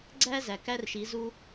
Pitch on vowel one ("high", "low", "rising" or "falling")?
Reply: high